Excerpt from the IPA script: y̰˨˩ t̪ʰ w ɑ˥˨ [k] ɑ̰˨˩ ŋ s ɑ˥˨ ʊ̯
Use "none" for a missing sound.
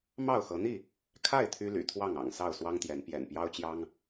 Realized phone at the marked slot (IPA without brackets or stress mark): ŋ